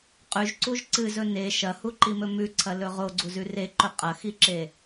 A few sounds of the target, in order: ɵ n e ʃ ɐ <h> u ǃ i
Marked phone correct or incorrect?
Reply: correct